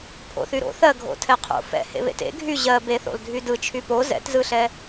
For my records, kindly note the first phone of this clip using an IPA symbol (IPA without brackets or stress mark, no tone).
pʰ